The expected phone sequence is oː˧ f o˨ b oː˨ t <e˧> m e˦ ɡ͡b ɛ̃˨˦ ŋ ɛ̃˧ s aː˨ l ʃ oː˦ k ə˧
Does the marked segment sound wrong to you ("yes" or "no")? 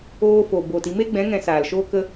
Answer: yes